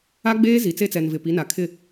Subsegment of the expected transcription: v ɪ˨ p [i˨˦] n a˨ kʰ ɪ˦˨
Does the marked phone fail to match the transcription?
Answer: no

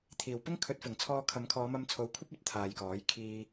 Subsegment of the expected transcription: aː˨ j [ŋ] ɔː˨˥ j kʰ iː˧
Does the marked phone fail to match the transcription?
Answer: yes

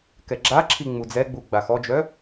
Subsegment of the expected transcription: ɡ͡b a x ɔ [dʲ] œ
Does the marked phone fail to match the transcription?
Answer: yes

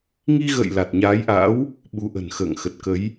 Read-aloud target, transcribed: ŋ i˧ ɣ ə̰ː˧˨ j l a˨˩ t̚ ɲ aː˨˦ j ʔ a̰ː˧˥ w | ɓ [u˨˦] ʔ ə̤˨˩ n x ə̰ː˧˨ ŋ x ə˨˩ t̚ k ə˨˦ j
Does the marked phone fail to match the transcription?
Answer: no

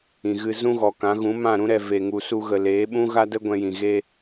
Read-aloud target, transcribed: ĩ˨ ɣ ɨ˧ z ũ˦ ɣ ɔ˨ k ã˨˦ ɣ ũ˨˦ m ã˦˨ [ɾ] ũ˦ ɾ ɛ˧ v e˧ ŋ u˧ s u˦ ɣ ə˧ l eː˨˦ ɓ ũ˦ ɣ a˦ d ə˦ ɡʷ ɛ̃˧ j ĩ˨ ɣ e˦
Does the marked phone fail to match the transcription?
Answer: no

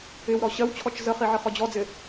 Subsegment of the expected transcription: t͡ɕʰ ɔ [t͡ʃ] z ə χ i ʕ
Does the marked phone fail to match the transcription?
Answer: no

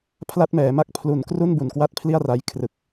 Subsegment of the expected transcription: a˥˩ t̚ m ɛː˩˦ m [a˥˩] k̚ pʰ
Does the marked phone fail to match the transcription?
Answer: no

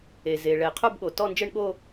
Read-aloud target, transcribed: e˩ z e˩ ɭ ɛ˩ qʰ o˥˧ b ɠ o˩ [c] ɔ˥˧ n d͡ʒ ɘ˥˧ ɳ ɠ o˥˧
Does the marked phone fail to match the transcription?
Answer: yes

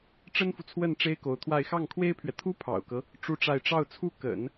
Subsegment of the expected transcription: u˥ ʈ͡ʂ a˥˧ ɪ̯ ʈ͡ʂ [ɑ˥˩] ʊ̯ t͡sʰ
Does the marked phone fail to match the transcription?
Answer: no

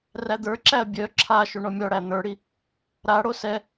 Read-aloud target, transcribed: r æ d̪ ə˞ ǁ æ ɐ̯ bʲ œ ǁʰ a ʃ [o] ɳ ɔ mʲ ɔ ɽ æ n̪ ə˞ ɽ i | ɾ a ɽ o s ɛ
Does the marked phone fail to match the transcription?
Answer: no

